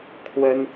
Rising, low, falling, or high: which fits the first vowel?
high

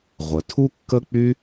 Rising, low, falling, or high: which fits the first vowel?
low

